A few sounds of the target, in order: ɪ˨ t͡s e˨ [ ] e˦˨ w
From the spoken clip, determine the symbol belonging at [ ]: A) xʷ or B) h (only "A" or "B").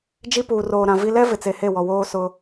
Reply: B